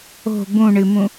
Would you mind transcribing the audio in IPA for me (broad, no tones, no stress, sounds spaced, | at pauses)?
o̤ b ũ ɳ ɨ m ũ